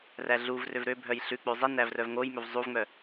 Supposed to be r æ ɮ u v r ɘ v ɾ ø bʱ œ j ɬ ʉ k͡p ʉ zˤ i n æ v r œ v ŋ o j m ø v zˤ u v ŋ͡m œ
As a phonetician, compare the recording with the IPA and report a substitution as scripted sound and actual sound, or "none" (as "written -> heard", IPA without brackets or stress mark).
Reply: ɘ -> ø